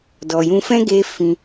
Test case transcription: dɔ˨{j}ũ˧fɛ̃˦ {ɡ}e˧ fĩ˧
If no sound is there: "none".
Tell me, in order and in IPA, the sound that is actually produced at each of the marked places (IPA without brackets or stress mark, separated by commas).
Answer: j, ɡ